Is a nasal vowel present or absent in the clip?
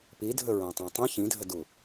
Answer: present